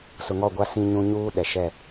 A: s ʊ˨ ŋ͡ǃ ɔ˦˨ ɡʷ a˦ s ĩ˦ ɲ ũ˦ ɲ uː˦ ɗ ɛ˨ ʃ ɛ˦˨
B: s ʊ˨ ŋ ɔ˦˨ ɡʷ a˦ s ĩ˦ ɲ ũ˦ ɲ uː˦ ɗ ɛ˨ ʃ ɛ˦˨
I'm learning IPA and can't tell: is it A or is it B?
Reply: B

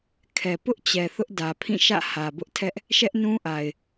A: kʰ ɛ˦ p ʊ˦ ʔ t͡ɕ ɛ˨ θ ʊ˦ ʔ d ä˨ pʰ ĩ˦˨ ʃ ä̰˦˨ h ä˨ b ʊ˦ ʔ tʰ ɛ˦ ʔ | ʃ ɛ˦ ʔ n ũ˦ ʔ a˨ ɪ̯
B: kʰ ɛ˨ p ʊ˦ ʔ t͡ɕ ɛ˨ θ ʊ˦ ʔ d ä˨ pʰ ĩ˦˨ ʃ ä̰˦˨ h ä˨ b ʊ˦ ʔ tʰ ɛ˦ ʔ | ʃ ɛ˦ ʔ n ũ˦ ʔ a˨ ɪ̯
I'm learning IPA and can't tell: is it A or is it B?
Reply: B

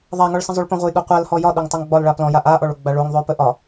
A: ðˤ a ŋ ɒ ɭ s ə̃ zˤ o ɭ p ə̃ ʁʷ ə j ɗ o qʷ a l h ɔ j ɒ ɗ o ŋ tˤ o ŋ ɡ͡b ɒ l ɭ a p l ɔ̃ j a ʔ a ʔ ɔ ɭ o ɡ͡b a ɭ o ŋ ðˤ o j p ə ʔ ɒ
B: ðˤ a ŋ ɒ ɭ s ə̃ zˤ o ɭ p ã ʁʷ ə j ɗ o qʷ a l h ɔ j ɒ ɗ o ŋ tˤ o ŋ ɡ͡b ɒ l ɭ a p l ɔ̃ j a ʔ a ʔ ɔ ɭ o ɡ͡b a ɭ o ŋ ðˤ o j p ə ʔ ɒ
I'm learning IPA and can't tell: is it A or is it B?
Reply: A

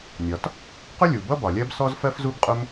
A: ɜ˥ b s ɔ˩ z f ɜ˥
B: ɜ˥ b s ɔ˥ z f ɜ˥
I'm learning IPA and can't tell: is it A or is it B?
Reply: B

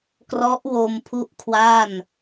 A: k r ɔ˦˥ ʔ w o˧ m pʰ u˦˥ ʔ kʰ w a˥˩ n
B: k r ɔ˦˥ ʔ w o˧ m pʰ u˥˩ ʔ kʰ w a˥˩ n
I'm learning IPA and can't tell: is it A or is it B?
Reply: A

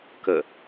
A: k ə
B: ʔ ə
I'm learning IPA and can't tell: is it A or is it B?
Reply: A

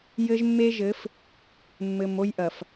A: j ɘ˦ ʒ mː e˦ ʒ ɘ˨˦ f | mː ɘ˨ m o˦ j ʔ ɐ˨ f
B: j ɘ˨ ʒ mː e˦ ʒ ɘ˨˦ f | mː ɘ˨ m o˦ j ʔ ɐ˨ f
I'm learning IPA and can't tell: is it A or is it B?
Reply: A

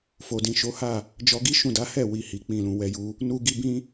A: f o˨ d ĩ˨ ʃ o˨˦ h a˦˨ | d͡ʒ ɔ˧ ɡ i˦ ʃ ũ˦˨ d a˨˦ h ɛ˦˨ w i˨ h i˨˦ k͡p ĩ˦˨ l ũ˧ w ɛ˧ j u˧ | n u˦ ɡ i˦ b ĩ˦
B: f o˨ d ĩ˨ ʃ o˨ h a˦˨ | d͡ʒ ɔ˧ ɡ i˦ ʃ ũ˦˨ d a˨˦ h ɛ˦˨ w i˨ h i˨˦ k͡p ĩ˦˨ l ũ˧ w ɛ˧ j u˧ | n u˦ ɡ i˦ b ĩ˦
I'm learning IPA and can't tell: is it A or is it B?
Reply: A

